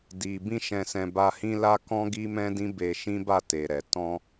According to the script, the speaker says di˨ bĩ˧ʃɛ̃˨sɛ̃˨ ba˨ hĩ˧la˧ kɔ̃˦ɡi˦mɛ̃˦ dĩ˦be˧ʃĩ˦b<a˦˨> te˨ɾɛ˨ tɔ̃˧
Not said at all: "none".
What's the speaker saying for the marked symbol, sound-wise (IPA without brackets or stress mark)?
a˦˨